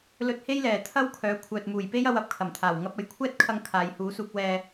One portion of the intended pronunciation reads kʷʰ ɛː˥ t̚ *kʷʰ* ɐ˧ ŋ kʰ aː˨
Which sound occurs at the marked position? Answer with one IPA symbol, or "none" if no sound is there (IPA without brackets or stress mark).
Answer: kʰ